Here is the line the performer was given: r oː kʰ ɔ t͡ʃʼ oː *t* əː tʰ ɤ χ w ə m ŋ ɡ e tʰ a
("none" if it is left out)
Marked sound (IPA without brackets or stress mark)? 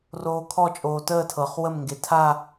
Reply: t